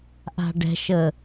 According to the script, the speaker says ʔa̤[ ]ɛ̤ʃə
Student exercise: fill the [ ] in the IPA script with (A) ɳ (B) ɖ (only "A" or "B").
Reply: B